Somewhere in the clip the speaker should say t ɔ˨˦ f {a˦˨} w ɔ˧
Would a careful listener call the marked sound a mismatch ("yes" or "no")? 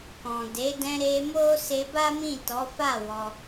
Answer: no